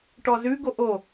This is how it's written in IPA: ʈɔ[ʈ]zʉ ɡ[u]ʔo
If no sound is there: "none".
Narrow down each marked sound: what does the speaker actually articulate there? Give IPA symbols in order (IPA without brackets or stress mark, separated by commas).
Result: none, o